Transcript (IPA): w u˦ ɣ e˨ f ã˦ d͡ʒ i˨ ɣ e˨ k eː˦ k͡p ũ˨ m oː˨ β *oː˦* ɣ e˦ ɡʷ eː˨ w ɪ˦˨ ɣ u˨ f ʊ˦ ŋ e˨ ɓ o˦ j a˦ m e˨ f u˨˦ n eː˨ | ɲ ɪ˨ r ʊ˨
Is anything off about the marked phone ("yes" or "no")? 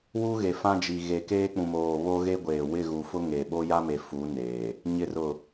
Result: yes